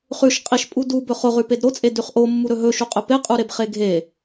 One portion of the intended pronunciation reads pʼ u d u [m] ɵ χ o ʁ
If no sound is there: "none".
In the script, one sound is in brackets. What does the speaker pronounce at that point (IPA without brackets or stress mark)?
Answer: b